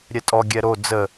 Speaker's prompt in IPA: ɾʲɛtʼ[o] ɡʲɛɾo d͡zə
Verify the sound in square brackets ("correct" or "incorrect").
incorrect